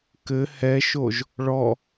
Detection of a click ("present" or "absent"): absent